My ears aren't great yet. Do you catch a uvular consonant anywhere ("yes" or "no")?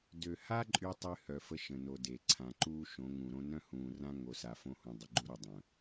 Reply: no